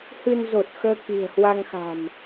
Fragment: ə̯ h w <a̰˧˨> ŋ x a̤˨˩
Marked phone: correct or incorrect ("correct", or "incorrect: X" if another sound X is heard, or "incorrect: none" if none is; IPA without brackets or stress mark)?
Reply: incorrect: a˧